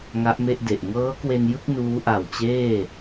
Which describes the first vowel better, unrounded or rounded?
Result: unrounded